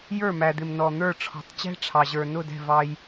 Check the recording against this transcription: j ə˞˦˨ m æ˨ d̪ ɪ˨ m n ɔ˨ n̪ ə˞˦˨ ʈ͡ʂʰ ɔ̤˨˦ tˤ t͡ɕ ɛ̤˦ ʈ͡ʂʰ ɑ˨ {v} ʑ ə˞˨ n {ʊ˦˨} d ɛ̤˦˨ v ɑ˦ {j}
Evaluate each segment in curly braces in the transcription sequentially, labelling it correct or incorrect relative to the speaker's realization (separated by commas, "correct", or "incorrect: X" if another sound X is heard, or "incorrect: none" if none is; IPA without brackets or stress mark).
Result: incorrect: none, correct, correct